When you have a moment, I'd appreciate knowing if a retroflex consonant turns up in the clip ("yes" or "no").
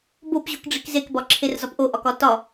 yes